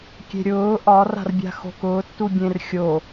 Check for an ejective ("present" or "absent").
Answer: absent